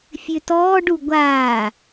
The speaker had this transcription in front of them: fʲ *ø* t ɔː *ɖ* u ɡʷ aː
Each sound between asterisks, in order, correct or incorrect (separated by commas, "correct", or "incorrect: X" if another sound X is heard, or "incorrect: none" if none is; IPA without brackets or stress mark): correct, correct